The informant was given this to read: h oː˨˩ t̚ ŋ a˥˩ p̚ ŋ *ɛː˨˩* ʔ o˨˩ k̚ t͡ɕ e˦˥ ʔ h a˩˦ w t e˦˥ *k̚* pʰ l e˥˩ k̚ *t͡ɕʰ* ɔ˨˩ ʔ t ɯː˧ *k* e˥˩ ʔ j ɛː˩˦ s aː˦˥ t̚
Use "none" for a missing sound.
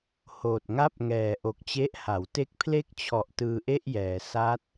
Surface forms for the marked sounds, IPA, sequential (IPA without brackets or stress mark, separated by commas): ɛː˨˩, k̚, t͡ɕʰ, ʔ